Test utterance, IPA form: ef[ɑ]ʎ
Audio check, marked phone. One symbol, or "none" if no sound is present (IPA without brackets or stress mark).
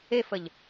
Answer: ə